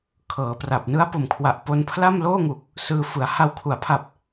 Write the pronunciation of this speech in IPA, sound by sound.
kʰɤː˩˦pra˨˩p̚ nɯ˦˥a̯po˨˩mkʰwa˨˩ʔ po˧npʰla˥˩mloː˥˩ŋu˨˩k̚ | sɯː˧fɯ˩˦a̯ ha˧wkʰu˩˦a̯pʰa˨˩p̚

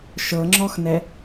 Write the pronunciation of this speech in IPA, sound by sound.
ʃɤŋ͡ǁɔxnɛ

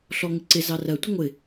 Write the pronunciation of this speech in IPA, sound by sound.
ɬɔŋɪǀɪ zɑrɜ tʷəŋʷɪ

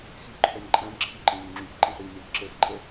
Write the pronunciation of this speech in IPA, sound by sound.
xyǃʰɛm ǃʼãmǁʰi ǃə̃ŋyŋ͡ǁyfǃĩχ ymũv ǁɛfǃʼɛ

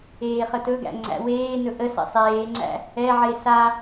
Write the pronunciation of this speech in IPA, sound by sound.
eːχətɵɡæ̰ ŋ͡ǀæ̰weːnɵ ʔəsɛ̰ sˤeːŋ͡ǀæ̰ | ɛʕe sa

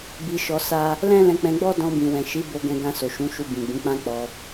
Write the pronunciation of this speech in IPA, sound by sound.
bi˧ʃɔ˧ sa˦ | lɛ̃˦lɛ̃˧k͡pɛ̃˧ɡ͡bɔ˦ dɔ̃˧bĩ˨wɛ̃˨ʃi˨˦ bo˧ɡɛ̃˧ɡã˧ so˨ʃũ˨˦ʃu˧ bĩ˨ɡ͡bũ˨˦k͡pã˦ k͡pɔ˧

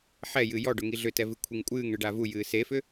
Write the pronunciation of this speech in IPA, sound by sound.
ħɛ jɨjɔɖʊ ŋiɮʏtɛ vɨkʷʰiŋkʷʼɨːŋɳɨ ɖavujɨː sefʏ

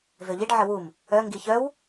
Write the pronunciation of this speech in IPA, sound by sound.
vøʎiɖ ʕəwum | œ ŋɡiçœw

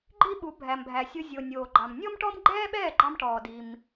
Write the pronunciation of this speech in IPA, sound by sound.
ɡ͡ǃi˥ɓu˩˥ bʱæ˩mbʱæ˩ sʲo˧zʲo˩nʲoː˩ɡ͡ǃɑ˩m nʲɔ˥mʈɔ˥m ɡ͡ǃɛː˥ɓɛː˥˩ɡ͡ǃɑ˧m ʈɔː˩di˩m

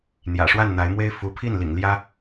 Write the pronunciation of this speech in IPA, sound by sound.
n̪jä̰˨˩ʂwa˥˩nn̪a˧˥ɪ̯mwe˥ɪ̯ fu˧˥pʰi˥˩n lḭ˨˩ŋljä˥

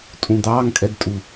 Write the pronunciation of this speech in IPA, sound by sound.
tʼũd̪ɑːŋkʼɛdtʼu

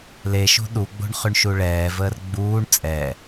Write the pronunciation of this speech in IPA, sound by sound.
leʃo̤ ɗuɡ͡bo̤ɳ χyɳʃuɭɛːvəːr ɡ͡buːɳ t͡sʼɛ

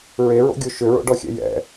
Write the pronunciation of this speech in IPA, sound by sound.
ɹeɹo̰ɡʲo ʃʏɹo̰ɖɔxʲɛ̰ jɛ̰

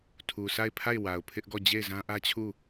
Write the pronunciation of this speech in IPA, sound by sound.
tʰu˨sʰa˦˨ɪ̯pʰa˦˨ɪ̯ wa˨ʊ̯pʰɪ˦ʔɡɔ˦˨ d͡ʑe˦˨ɪ̯zã˦ʔä˦t͡ɕʰu˦˨

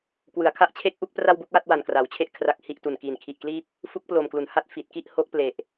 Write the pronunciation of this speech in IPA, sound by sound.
kwɯ˩˦a̯kʰa˦˥ʔt͡ɕʰe˥˩k̚ ʔu˥˩k̚ pra˥˩wbu˦˥k̚wa˥˩t̚wa˨˩n kra˩˦wt͡ɕʰe˥˩ʔ kʰra˦˥k̚hi˥˩ʔ tu˨˩nkiː˨˩nkʰi˨˩ʔkliː˥˩p̚ | fu˦˥k̚plo˨˩mklu˩˦nha˦˥t̚ fi˨˩t̚ki˥˩ʔ ho˦˥k̚ple˨˩ʔ

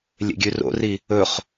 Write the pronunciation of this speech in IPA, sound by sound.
lʲḛɡʲʉro̰ri | ɵχ

